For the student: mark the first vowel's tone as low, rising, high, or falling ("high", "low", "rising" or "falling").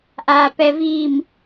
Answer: low